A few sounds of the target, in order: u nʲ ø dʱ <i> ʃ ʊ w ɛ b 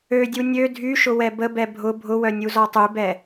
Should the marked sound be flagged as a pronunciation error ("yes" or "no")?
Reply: yes